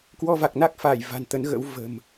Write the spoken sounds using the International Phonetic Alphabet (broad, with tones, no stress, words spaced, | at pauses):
kwɔ˧va˨˩k̚na˦˥k̚faː˧˩j va̤˨˩nt̪ə˨˦nɣə̰˧˥w və̤˨˩m